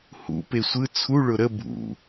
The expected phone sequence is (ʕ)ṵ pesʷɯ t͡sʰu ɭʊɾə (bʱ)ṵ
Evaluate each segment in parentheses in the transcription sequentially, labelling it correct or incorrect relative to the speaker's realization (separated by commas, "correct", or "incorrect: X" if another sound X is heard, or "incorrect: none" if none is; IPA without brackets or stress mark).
incorrect: h, correct